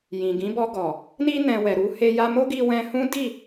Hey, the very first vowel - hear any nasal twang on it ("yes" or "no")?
yes